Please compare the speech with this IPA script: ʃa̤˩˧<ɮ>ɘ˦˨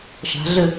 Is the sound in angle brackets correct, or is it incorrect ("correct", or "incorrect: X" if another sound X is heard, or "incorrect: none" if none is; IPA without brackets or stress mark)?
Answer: correct